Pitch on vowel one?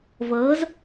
rising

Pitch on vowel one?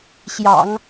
low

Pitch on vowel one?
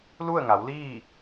falling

